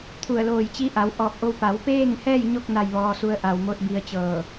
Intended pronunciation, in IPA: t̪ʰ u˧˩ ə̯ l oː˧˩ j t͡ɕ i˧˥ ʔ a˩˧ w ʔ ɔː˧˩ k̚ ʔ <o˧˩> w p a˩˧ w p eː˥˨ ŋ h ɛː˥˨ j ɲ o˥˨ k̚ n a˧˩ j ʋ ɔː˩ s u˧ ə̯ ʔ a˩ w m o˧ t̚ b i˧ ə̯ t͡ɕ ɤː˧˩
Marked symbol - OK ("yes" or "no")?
no